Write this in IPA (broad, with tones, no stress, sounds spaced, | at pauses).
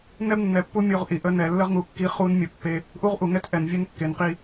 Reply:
n ɛ˦ b nː ɛ˨ pː u˦ mʲ o˦ ʁ ʔ i˨ ʔ ə˦ n ɛ˨ lː ə˦ ʁ ŋ u˨ kː i˦ χ u˦ n mʲ ə˨ pː e˦ | ʔ u˦ ʁ ʔ u˨ ŋ ɛ˦ t ʔ ɛ˨ n vʲ e˦ n kː e˨ n q i˦